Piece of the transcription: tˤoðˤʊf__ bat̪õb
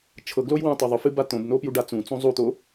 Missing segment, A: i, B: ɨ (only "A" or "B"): B